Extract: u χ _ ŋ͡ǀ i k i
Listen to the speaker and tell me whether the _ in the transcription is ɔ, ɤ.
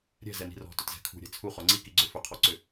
ɔ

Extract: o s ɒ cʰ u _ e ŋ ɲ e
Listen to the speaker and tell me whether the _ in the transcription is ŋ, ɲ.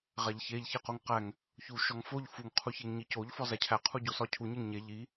ɲ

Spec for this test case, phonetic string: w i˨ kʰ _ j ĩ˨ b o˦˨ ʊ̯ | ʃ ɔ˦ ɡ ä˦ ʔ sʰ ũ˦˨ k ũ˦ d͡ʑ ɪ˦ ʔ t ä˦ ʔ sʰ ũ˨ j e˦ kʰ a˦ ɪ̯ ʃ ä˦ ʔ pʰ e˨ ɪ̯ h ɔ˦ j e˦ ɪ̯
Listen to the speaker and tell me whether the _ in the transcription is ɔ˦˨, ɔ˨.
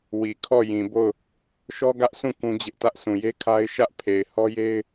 ɔ˦˨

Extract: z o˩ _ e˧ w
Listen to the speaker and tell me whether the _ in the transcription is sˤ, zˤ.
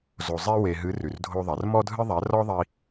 zˤ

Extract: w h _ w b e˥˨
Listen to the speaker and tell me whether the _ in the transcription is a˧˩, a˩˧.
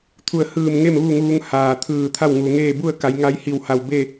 a˧˩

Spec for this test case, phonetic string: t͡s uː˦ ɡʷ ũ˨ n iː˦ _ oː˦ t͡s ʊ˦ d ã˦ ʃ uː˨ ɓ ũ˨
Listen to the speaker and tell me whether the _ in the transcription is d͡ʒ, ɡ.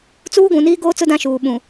ɡ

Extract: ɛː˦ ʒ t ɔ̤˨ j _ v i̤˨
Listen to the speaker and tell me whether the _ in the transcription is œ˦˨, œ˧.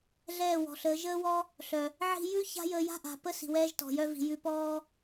œ˧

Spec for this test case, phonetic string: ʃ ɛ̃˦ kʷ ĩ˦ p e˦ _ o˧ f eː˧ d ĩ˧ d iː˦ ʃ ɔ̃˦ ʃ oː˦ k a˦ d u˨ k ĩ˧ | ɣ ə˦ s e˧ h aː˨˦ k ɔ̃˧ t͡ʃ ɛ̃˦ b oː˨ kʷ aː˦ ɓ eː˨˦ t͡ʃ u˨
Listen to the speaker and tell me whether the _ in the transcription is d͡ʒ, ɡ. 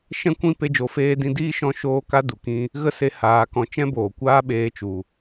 d͡ʒ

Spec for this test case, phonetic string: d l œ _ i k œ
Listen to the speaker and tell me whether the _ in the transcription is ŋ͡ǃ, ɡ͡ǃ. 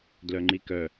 ŋ͡ǃ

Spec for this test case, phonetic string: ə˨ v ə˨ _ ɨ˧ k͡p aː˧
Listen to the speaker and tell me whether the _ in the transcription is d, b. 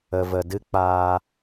d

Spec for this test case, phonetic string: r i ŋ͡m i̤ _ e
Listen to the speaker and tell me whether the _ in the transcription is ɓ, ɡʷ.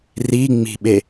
ɓ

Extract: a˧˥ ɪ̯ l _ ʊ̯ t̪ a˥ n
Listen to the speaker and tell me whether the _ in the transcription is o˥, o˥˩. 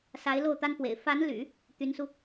o˥˩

